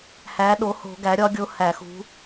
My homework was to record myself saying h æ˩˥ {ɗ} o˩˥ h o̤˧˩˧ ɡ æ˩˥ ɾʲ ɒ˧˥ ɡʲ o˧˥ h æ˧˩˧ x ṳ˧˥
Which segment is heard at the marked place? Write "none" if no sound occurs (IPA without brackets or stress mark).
ɗ